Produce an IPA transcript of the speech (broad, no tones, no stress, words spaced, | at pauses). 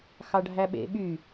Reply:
xɑɖʱæɓḛ ɓy